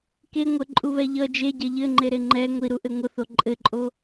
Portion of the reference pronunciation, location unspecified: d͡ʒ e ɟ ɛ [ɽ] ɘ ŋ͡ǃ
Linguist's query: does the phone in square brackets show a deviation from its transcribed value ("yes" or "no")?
yes